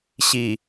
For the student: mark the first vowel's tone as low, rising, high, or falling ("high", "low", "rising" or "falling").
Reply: low